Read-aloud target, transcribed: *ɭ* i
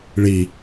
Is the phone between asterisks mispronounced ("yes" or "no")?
no